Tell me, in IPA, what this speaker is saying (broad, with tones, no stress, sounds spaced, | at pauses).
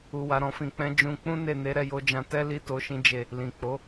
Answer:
u˨ w a˨ ɾ ɔ̃˨ f ĩ˨ k͡p ɛ̃˨˦ d͡ʒ ũ˧ k͡p ũ˦ n e˦˨ n e˨˦ ɾ ɛ˧ j o˧ d͡ʒ ã˧ t ɛ˦ l i˦ t o˧ ʃ ĩ˦ d͡ʒ e˦˨ | l ĩ˨ k͡p o˨˦